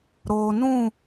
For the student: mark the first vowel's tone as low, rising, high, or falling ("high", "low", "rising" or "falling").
low